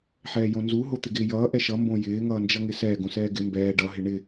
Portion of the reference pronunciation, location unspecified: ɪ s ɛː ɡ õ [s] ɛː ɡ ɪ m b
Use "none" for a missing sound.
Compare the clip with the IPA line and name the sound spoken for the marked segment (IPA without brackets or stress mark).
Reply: s